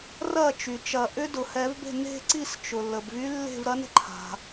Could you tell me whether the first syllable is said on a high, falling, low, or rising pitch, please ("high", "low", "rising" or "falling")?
falling